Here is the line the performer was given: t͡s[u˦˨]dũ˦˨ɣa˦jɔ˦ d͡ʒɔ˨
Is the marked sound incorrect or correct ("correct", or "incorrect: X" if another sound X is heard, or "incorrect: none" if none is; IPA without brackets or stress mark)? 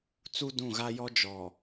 incorrect: u˦